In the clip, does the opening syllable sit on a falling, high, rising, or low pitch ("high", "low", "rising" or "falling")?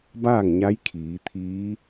falling